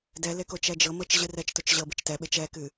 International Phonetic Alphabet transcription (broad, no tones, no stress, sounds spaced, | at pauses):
d ɛ l e k o t͡ʃ ɛ d͡ʒ ɤ m ɤ t͡ʃ ʑ ɨ r ɛ t͡ʃ t o t͡ʃ ʑ ɤ b ɨ t͡ʃ t ɛ ɓ e t͡ʃ ɛ k ɨ